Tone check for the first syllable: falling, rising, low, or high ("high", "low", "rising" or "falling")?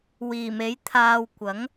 low